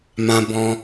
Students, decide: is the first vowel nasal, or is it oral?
nasal